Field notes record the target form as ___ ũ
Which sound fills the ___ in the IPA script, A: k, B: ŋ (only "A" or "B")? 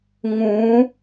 B